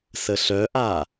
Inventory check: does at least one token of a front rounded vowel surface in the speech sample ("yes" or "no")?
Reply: yes